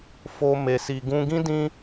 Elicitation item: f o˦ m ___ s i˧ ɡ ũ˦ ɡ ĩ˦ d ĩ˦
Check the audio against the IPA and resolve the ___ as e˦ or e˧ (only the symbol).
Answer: e˧